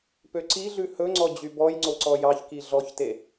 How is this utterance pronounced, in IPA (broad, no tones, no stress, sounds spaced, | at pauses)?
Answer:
p ø ǀ i ɮ ʉ h ɵ ŋ͡ǀ ɔ d͡ʑ y b ɔ j ŋ͡ǀ o ǀ ɔ j ɑ ç k i ɮ ɔ ç t e